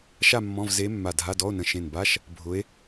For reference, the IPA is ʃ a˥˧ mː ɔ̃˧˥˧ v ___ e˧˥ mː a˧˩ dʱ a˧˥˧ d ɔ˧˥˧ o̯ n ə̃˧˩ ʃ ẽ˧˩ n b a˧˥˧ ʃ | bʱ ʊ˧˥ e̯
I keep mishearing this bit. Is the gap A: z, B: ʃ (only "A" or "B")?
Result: A